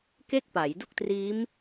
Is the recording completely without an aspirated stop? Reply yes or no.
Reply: yes